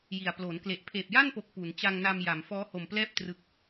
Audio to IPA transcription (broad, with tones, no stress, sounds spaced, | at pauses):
j i˨˩ a̯ p l oː˩˦ n k l e˨˩ ʔ pʰ eː˨˩ p̚ j a˥˩ n p o˨˩ k̚ p u˩˦ n t͡ɕ a˧ ŋ n a˧ m j a˩˦ m f ɔː˦˥ h o˨˩ m p l ɛː˥˩ p̚ t r ɯ˨˩ k̚